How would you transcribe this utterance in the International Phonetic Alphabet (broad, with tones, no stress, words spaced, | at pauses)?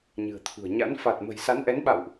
ɲɨ̤˨˩ə̯t̪ʰṳ˨˩ə̯ɲa̰˧˥n fa˨˩t̚mə̤˨˩jsa˨˦n ʔɛ˨˦nɓa̰˧˨wʔ